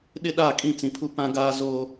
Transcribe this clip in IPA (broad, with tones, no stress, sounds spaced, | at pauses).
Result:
ɗ ɪ˦ ɗ a˦˨ kʼ ĩ˦˨ t͡s ĩ˨ pʰ u˦ p ã˦ ɡ aː˦ z oː˦